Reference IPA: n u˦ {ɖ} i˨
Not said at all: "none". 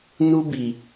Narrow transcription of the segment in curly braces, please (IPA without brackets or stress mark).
b